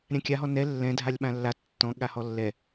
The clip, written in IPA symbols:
ɾʲ ã kʲ a ɦ ɔ n ɛ lː ɛ̃ dʱ a lʲ ɓ ã lː a tː ɔ̃ ɠ a h ɔ lː ɛ

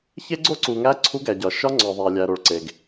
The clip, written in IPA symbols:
ç e˦ ɡ͡ǀ o˦ ǀ u˨ ŋ æ˦ ǀʰ u˦ ɡ æ˨ ɟ ɒ˨ ʃ ɒ˦ ŋ͡ǀ ɒ˨ ðˤ æ˨ lʲ æ˨ ɾ o˨ ɭ ǀ e˨ ɡ

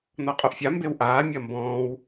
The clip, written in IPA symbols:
n ɔ qʼ o ʔ fʲ a m b e w ʔ aː mʲ ɐ m b ɔ̃ː w

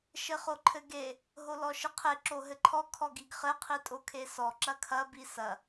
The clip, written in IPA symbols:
ʃ ɘ χ o ǃʰ ɘ ɡ e | ɦ o l ɔ ʃ ɨ qʰ e ǁ o ɦ ɘ ǃʰ ɔ kʰ ɔ ɡ i ɡ χ ɘ qʰ i tʼ o kʰ e s ɔ ǁ ɐ kʰ ɐ b i s ɐ

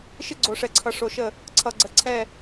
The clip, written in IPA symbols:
ʃ ɪ˦ ɡ͡ǀ o˨ ʂ ɛ˨ ǀʰ ʌ˨ ʂ o˨ ʃ ə˦˨ | ǀʰ ʌ˨ ɡ͡ǀ ə˨ ǀʰ ɛ˦˨

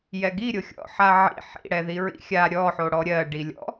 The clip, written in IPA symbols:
j ɛ ɡ i ɾʲ o xʲ ɔ̰ ħ a ʕ ḭ ħ ḭ ɽ ɛ ð i ɹ ḭ xʲ a ɾʲ ɔ ħ o ɽ ɔ ɾʲ ɜ ɖ i lʲ ɔ̰

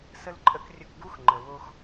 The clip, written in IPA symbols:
s ə˥ l ǃʼ ə˥ k rʲ ə˦ k ɡ u˥ x ŋ͡ǃ ə˩ w o˦ x

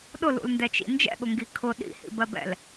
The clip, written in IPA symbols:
ɗ ʊ l ṵ l n d ɛ t͡ʃ ḭ n d͡ʒ ɛ̰ ɠ ʊ ŋ ɡ i kʰ ʊ ɗ ḭ h ḭ b ɜ b ɛ̰ l

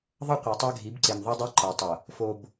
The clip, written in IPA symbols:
ðˤ ʌ˦ qʷ ɯ˨ tˤ a˦ ɡʱ i˨˦ b ǀ e˨ m ðˤ a˦ dˤ o˦ ǃ a˨ tˤ ʌ˨ | f o˨ b

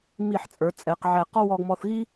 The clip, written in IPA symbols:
m i˧˩ ħ t͡sʼ ə˞˩˧ t͡sʼ ɛ˩˧ q ʕ æ˧˩ q ɔ˥ w ɔ˧ ɡ m ɔ˧ θ ɣ i˥

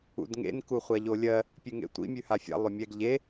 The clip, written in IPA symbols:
ṵ d ŋ ḛ n k u χʷ a ʎ o lʲ ɜ | pʲ ʉ ŋ ḛ tʷ ḭ mʲ ʉ h a fʲ a̰ lˠ ʏ mʲ ɛ ɡ ʎ e

